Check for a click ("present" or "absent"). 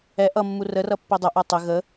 absent